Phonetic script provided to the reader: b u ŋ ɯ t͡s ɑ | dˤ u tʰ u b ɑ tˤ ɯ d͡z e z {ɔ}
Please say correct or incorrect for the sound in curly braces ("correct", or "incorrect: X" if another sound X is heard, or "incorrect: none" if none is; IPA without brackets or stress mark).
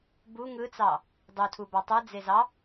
incorrect: ɑ